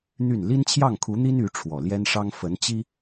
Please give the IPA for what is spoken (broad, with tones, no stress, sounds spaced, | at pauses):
n̪ y˥˩ n l i˥ n t͡ɕʰ j ɑ˥˩ ŋ kʰ u˧˥ n̪ i˥ n y˧˥ ʈ͡ʂʰ w ɔ˨˩ l j ɛ˥ n ʂ ɑ˥ ŋ f ə˧˥ n t͡ɕ i˥